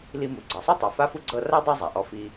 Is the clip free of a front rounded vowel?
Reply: yes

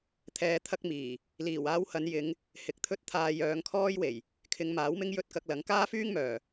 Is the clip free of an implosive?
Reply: yes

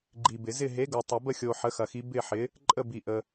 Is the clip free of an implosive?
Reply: yes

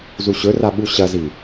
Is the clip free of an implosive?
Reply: no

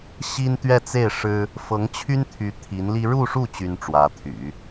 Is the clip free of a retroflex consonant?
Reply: no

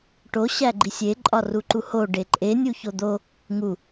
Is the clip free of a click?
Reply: no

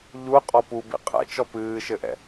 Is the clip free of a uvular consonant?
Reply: no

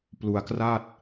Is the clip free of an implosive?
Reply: yes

